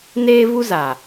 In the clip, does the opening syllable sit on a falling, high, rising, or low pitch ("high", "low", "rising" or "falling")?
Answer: high